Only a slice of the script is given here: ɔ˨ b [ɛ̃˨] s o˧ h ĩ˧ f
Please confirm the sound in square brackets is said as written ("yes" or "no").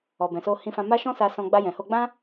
yes